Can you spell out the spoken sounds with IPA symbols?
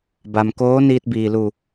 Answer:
b a˧ m k oː˧˥ n iː˧ t̚ b iː˩ l u˧˩

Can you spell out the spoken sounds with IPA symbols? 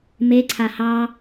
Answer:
m e ǀʰ a h ɑ

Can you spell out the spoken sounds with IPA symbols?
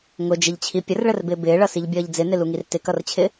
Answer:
ŋ ʊ d͡ʒ ɪ ʎ t͡ɕʰ i pʲ ə r ɭ ə r b ɪː b ɪː ɭ ʌ s i ʎ bʲ ʌː ʎ d͡z ɪ n ɪ l u ŋ i r t ɪ k ʌ r t͡ɕʰ ɪ

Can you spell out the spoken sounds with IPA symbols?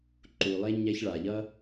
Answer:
ǃ u˩ lˠ e˧ ɲ ɛ˧ ç ɭ a˩ ʎ ʌ˥

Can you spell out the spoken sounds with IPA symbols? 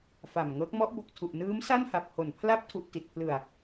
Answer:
f a˨˩ m ŋ ɤː˦˥ k̚ m ɔ˦˥ ʔ b o˨˩ k̚ tʰ u˨˩ ʔ n ɯː˦˥ m s a˥˩ n h a˨˩ p̚ h o˨˩ n pʰ l a˥˩ p̚ tʰ u˨˩ ʔ t i˨˩ t̚ pʰ l ɯ˨˩ a̯

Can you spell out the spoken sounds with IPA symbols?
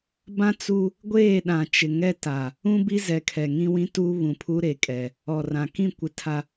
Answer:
b ã˦ t͡s u˦ | ɡʷ eː˦˨ ɗ ã˨ t͡ʃ ɪ˨ ŋ ɛ˦ t a˨ | ũ˦ b i˦ z ɛ˨˦ kʰ ɛ˨ ŋ ĩ˦ w ĩ˦ t uː˦ β ũ˨ pʰ u˦ ɾ e˨ kʼ ɛ˨ | ɔ˨ r ã˨ k ĩ˦˨ kʷ ɪ˨ tʰ a˨

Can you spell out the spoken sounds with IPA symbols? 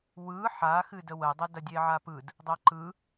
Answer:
w ɯ ħ a x ɨ d ə w ə dˤ ə d ɐ dʲ e ʕ a p ɯ d | dˤ ɐ ǃ ɯ

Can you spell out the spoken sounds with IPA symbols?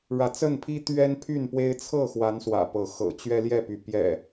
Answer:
ɻ ä˨˦ t͡s ə˥˨ n pʰ i˦ t̪ ɥ ɛ˦ n pʰ y˥˨ n p w e˦ ɪ̯ t͡sʰ ɤ˥˨ x w a˨˦ n s w ä̰˨˩ p ɤ˨˦ x ɤ̰˨˩ t͡ɕ ɥ ɛ˦ l j ɛ˥˨ p y˨˦ p j ɛ̰˨˩

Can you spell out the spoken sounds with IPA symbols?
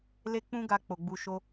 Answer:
l e˦ k͡p ũ˦ ɡ a˧ k͡p o˨ ɡ͡b u˧ ʃ o˦

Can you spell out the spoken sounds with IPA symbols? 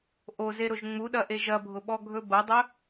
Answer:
ʔ o z e ɾ ʊ ʒ ŋ͡m u ɗ ɐ ʔ e ʒ ɐ bʱ ʊ ɓ ɔ ɡʱ ɵ b ɐ dˤ ɵ

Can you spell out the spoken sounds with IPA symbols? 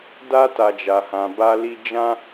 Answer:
d a˦ t a˧ d͡ʒ a˧ h ã˧ b a˦ l i˦ d͡ʒ ã˦

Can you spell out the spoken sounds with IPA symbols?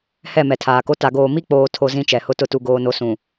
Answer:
h ɛ˦˨ m ɛ˨ tʰ aː˨ k o˦ t a˨ ɡ oː˨ m i˦ k͡p oː˨ tʰ o˦ z ĩ˦ t͡ʃ ɛ˨ h ʊ˦ t ʊ˦ t u˦ ɡ oː˦ n o˦ s ũ˨

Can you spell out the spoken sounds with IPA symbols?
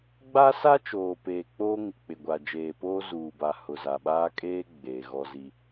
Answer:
ɡ͡b a˦ s a˦ t͡ʃ oː˨ p eː˨ k͡p oː˦ ŋ ɪ˨ k͡p ɪ˨ ɡʷ a˨ d͡ʒ eː˨ p oː˦ z uː˨ b a˨ h ʊ˨ z a˨ ɓ aː˦ kʼ eː˦ ɡ͡b eː˨ ɣ ɔ˦ z i˦

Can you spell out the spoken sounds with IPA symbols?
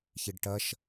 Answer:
ç i ɖ ʈ ɐ ʃ

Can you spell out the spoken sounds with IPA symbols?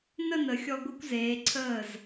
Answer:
n ə˥˧ n ə˩˧ xʲ ɔ˧ ɡʷ ɯ˧ kʷ z eː˩˧ ǀʰ əː˧˩ z

